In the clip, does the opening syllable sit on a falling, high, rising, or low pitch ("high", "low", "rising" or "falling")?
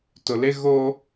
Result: low